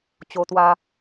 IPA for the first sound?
t͡ɕ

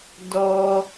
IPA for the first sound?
d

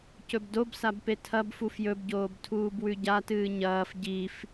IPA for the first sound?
c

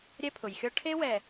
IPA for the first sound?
ɾʲ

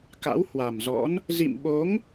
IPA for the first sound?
k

